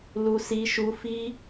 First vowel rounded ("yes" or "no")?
yes